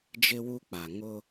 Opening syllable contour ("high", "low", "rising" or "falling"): high